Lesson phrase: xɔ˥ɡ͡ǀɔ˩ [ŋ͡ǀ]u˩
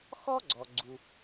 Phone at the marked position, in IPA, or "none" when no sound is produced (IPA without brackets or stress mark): ɡ͡ǀ